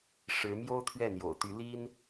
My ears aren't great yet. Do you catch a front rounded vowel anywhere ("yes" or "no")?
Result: yes